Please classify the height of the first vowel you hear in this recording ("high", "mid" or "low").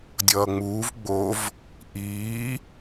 mid